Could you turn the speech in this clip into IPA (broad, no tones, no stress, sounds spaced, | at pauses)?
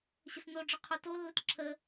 ɕ ə s n o ɖ͡ʐ ə qʰ o t o lː ə t ǁʰ ə